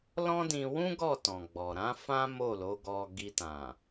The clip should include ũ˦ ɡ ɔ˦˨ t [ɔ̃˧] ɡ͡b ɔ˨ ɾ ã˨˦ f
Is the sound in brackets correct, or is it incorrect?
incorrect